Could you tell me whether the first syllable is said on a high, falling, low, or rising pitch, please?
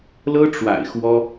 high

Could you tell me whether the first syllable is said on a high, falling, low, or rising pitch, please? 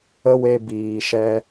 high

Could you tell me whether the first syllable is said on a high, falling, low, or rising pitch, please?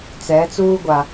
rising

